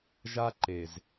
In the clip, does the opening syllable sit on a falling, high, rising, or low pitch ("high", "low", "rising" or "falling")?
high